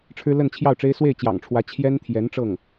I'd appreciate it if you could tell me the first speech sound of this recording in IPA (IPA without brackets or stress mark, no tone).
ʈ͡ʂʰ